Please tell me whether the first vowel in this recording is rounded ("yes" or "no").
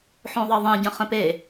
yes